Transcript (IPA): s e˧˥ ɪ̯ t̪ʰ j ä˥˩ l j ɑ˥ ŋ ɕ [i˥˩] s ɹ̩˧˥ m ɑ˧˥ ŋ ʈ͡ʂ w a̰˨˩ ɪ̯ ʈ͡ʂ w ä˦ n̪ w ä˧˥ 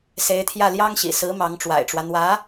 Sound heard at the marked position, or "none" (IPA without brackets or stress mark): ḭ˨˩